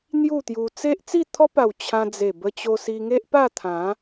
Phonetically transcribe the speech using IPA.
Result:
n̪ju˥˧t̪ju˧ t͡se˦ʔ t͡si˥˧t̪ʰɔ˦pa˨˩w t͡ɕʰã˧d͡ze˨˩bə˧ t͡ɕo˧si˧ŋe˦ʔ pa˥˧t̪ʰã˨˦

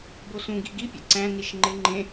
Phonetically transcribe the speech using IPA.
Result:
bosũ ɡiɡipʲḛ ǀæ̃niʃ ŋ͡ǃɪ ŋ͡ǃẽ

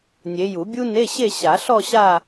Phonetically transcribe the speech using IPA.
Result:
nʲe˨˦ju˨˩˦bʲu˥ ne˧˥˧ɕe˥˧ ɕa˨˩˦ɬɔ˥˧ɕa˥˧

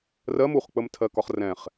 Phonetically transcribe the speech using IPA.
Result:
rɜm uχk͡pəmtʰɜkɒχ rɛ̃χ

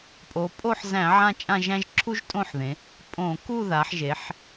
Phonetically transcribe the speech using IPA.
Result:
pʼo˩˧pʼo˥˧ħzæ̃˧˩˧ ʕã˥t͡ʃʼã˥˧ʒæ̃˥ʒ ǁʰu˥ʒtʼõ˥˧ħðẽ˩˧ | pʼõ˧˩˧ ku˥˧ða˩˧ħʒe˩˧ħ

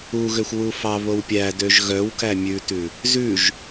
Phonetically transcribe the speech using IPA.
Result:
uɣøxʷ wufɑβow pʲædøʒ ɣœwkæ mʲʉtʉ | zʉʒ

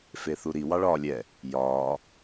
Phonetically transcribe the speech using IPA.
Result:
feθuɾi wɑɭɒːlʲɛ | jɒː

